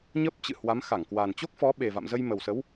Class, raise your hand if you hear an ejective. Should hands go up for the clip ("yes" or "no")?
no